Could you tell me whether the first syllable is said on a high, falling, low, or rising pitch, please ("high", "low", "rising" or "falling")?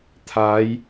rising